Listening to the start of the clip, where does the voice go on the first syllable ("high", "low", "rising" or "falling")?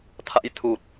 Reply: rising